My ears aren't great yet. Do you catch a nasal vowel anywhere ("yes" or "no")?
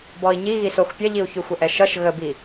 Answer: no